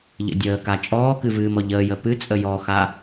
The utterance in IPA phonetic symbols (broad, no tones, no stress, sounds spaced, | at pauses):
ʎ ə̰ dʲ əː k a t͡ʃʼ ɔː k ɨ v ɨː m ɔ ʎ əː j ə p ɨ t͡sʼ ə j ɔ x a